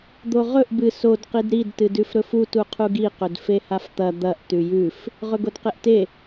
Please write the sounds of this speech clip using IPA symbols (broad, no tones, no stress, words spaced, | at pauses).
d̪oʁɵʔ bɨ sod qidɾid tɨdʉfɾɵfu tuqʰuɡi qɵdfehaft̪ɐ d̪ɐʔ tʉjʉf | ʁɵɡodqeʔte